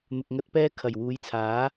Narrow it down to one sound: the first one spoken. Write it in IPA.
n̪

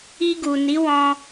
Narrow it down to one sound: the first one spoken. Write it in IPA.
i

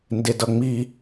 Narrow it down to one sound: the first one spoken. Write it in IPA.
n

